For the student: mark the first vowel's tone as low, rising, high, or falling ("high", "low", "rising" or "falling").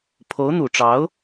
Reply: rising